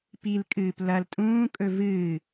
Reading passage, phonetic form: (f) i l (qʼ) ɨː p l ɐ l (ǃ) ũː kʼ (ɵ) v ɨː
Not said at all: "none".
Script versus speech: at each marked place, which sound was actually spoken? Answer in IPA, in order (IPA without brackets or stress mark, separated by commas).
p, kʼ, tʼ, ɵ